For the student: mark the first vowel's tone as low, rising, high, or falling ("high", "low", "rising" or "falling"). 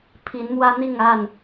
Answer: rising